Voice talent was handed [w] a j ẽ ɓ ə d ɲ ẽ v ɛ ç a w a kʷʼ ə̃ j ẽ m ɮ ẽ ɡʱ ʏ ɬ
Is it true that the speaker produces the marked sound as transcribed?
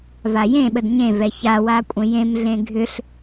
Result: no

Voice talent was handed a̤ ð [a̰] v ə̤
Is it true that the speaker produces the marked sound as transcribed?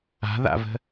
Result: yes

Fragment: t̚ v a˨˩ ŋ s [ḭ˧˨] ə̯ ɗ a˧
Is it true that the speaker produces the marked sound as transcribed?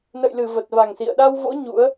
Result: yes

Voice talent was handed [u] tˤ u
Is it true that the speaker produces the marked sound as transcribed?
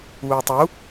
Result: no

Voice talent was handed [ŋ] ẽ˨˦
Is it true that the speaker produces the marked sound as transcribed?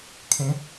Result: no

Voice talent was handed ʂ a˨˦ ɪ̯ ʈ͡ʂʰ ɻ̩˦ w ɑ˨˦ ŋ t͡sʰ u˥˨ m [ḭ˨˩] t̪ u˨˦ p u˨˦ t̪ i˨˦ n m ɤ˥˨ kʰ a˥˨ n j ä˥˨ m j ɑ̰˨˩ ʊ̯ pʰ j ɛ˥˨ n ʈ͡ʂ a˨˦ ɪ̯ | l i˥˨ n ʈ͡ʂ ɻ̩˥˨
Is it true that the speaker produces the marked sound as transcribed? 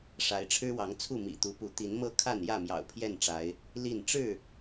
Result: yes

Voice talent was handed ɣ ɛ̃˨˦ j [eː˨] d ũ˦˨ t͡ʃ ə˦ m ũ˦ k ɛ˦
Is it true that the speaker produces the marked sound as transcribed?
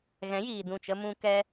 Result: no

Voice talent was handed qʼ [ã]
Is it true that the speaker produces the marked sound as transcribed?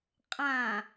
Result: yes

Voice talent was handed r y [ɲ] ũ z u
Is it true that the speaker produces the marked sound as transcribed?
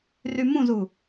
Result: no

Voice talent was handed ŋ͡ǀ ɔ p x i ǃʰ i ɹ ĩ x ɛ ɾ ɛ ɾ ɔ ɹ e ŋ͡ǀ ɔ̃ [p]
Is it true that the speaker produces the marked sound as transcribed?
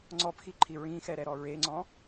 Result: no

